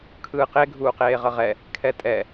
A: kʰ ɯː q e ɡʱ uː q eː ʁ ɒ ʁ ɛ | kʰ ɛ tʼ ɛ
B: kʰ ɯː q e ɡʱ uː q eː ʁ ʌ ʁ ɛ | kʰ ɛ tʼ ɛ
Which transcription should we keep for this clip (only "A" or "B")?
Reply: B